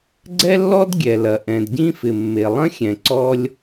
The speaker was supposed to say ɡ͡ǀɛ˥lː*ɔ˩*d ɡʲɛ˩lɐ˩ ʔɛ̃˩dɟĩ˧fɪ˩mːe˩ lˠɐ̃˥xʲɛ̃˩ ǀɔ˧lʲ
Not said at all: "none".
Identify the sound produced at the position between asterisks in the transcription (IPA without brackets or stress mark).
ɔ˥